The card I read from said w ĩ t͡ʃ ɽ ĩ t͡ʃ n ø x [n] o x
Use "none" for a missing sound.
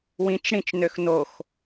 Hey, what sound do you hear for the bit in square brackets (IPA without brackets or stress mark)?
n